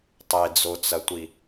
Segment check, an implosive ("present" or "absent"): absent